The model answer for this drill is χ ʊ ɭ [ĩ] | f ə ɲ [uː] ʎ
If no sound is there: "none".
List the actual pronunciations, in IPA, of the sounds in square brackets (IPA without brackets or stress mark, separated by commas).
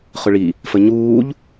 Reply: i, uː